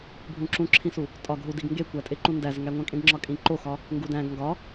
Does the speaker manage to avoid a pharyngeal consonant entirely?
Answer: yes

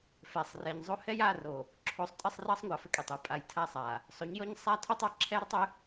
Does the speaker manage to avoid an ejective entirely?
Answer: no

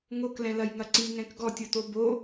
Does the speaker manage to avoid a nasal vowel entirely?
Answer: no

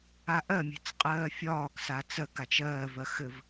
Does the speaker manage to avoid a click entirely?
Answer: yes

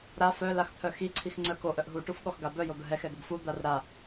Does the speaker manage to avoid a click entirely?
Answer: no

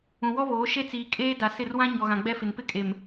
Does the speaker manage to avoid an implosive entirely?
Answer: yes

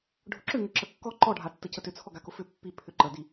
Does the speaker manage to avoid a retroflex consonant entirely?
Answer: no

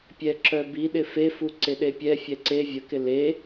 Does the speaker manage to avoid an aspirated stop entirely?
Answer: yes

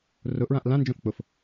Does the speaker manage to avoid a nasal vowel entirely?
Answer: no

